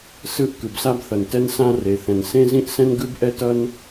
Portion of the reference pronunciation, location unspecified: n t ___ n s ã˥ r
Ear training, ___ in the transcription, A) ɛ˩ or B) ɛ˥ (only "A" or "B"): B